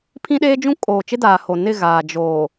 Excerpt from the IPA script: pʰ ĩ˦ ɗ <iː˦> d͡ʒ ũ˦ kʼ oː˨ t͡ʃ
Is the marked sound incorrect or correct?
incorrect